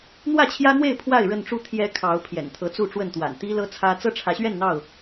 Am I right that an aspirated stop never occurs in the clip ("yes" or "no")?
no